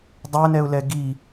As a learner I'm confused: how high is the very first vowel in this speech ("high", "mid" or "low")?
low